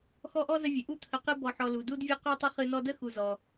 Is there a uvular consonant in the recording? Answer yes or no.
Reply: yes